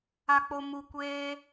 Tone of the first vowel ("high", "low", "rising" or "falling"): low